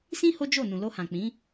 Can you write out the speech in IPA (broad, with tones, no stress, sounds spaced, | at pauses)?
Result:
s ĩ˦ h o˦ d͡ʒ o˦˨ n ũ˨ l o˧ h ã˨ k͡p ĩ˨˦